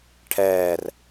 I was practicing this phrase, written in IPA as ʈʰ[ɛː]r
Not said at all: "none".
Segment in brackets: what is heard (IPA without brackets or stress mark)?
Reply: ɛː